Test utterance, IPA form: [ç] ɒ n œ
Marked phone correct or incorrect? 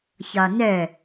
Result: correct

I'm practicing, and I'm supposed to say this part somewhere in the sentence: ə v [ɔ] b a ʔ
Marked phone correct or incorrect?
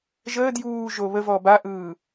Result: correct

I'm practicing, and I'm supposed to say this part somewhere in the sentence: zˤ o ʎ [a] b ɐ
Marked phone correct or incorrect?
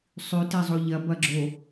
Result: incorrect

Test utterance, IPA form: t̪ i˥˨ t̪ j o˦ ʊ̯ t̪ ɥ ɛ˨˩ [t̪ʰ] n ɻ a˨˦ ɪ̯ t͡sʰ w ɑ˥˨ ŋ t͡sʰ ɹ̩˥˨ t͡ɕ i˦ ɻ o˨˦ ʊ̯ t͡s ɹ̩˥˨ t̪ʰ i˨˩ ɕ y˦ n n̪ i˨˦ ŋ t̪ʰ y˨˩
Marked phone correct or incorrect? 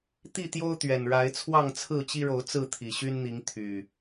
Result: incorrect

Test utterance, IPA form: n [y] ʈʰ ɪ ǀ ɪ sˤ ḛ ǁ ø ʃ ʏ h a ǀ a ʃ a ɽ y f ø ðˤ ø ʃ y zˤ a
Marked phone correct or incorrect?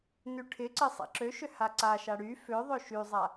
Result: correct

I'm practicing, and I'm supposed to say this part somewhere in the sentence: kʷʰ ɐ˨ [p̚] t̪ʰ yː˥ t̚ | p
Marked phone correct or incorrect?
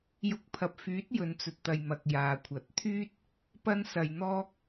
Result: incorrect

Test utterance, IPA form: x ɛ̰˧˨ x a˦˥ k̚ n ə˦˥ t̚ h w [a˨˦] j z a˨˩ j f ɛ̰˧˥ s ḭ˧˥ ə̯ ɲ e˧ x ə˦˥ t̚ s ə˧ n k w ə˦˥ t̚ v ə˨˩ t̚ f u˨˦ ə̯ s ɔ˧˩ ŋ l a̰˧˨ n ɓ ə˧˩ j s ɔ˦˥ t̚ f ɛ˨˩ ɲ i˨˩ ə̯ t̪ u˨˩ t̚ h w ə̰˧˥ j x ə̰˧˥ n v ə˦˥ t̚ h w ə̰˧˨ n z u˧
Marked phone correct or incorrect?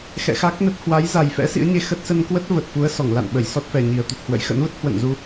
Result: correct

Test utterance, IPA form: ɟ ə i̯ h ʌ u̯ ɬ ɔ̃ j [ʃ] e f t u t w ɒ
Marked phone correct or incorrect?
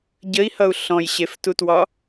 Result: incorrect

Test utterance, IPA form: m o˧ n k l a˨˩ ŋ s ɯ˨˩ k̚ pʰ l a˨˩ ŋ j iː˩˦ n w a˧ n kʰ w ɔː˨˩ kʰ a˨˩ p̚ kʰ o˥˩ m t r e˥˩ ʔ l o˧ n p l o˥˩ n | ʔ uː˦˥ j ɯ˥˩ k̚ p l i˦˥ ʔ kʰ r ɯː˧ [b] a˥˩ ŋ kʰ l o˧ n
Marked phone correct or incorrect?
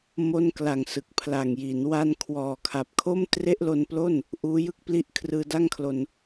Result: incorrect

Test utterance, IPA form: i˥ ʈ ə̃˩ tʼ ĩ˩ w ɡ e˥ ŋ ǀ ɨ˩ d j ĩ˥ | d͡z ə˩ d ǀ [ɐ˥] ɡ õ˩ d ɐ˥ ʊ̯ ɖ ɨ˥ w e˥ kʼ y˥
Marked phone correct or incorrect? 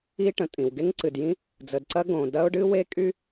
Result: correct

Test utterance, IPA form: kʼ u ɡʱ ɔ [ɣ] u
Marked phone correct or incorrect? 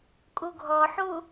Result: incorrect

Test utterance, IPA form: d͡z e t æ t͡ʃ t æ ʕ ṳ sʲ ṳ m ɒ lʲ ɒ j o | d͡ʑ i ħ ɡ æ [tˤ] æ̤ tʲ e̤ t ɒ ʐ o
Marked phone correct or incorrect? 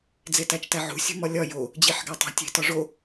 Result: correct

